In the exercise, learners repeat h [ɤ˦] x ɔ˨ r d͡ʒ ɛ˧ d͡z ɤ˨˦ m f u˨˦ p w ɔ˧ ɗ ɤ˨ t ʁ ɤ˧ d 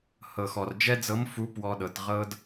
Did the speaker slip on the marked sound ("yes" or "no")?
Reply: yes